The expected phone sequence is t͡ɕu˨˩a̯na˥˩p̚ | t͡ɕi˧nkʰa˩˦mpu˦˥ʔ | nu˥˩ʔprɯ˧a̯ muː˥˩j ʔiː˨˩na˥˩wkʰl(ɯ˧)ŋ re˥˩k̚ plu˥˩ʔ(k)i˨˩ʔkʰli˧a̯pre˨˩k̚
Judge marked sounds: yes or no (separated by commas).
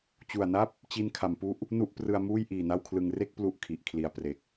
yes, no